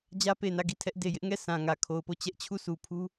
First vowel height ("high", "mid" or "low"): low